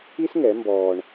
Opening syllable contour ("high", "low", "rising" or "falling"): high